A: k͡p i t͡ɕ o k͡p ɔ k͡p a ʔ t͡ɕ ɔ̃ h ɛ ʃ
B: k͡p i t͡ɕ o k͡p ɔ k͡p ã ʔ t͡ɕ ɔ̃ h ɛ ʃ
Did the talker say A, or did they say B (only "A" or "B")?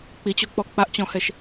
A